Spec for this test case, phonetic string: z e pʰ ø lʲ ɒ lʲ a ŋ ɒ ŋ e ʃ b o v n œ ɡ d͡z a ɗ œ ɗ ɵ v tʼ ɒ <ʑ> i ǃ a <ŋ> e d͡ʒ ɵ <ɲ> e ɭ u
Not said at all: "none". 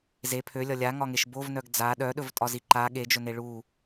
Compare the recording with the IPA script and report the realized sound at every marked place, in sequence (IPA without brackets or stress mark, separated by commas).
z, ɠ, n